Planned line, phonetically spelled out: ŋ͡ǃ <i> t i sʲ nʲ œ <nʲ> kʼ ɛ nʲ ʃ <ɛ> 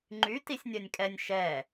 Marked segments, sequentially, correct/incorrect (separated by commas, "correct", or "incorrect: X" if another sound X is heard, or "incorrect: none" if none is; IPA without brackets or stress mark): incorrect: y, correct, correct